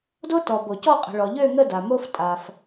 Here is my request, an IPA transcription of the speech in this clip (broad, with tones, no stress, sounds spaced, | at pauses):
d o˦ t ɔ˩ b o˩ c ɔ˦˨ qʼ ə̤˩ ɭ ɔ˩ ʎ ø˦˨ ŋ ə˦˨ d a˩ m o˦ f tʼ a˩ f